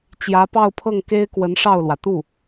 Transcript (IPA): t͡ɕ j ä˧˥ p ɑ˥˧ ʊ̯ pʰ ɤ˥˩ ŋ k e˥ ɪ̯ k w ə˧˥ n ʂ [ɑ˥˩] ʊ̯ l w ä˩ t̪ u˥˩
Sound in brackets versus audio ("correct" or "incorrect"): correct